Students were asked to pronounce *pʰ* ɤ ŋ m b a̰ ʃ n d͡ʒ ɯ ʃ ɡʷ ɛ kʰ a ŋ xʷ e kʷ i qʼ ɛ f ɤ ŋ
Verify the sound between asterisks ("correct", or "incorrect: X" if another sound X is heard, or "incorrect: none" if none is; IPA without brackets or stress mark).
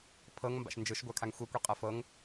correct